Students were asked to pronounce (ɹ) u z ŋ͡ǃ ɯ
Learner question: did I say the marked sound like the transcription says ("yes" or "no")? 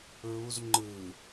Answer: yes